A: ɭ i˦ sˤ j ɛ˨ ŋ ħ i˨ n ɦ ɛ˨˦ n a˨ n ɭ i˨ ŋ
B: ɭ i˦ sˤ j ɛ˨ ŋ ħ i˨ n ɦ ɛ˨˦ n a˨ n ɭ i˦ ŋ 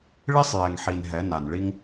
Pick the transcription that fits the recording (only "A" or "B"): B